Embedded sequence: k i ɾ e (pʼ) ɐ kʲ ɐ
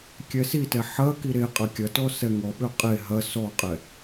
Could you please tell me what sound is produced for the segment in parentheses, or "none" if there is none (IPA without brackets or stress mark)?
qʼ